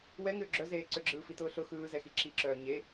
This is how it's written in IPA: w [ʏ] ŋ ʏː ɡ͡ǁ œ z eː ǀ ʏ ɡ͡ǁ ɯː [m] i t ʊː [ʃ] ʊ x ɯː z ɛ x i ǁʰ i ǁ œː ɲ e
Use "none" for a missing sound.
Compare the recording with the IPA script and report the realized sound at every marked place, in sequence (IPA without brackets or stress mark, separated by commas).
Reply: ɛ, f, ɬ